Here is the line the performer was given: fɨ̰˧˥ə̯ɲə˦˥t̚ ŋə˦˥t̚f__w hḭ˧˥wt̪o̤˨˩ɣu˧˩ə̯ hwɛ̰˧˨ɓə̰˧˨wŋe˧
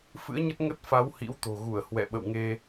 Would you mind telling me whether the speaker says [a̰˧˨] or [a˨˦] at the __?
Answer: a˨˦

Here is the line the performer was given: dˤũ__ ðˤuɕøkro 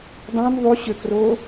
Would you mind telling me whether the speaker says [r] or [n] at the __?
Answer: n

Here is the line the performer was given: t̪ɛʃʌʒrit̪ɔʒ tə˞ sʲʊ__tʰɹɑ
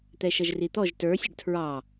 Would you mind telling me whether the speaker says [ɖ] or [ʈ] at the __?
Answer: ɖ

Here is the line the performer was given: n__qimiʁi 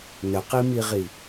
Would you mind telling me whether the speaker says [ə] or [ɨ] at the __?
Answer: ə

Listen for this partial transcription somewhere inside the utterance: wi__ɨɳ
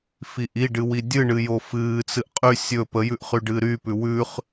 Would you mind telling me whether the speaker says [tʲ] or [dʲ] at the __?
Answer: dʲ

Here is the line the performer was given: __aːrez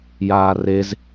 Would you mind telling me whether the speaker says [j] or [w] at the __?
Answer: j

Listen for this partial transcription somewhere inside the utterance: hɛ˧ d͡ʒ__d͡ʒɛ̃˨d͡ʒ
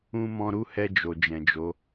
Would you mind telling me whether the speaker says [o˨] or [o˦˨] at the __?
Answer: o˨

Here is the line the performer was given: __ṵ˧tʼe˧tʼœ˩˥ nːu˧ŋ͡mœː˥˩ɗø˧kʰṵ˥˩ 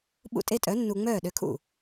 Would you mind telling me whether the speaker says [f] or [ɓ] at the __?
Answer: ɓ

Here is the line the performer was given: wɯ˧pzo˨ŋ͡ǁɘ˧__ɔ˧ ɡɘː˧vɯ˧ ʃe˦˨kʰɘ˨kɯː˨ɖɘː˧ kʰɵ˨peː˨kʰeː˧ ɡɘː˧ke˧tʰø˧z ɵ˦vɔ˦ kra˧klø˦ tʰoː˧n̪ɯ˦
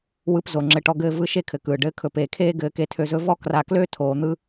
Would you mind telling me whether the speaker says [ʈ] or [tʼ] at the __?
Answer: ʈ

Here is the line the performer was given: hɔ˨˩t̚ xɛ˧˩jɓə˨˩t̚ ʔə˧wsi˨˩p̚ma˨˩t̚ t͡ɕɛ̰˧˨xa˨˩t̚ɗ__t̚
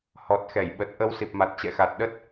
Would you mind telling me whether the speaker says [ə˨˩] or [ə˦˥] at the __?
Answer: ə˦˥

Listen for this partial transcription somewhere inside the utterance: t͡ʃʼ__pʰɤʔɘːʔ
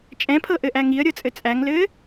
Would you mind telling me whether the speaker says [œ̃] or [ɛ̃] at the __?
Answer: ɛ̃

